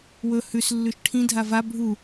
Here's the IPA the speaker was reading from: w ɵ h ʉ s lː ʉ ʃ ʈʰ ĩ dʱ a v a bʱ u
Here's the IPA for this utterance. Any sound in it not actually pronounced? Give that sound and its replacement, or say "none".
none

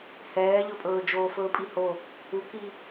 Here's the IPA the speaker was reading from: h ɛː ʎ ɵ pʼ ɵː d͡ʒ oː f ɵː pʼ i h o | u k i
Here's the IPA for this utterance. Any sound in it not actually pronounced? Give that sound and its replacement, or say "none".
none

